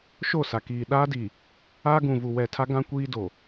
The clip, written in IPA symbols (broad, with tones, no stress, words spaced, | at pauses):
ʃo˦˨sa˨kiː˨ ɗaː˦di˨ | aː˦ɡũ˨ vu˨wɛ˨tʰa˦ɡã˦ kʷiː˦do˨